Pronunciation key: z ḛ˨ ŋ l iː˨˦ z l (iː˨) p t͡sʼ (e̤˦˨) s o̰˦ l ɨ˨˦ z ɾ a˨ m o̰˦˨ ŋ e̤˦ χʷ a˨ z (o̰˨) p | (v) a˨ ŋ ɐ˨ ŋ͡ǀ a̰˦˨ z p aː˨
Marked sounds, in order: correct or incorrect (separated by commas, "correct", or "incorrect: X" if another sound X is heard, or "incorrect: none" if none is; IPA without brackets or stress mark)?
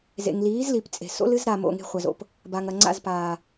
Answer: incorrect: i˨, incorrect: e̤˨, correct, incorrect: b